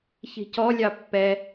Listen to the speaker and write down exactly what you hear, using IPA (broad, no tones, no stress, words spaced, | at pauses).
çi̤cɔlʲɑ pːɛ